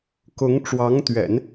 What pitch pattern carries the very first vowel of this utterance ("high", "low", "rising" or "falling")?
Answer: rising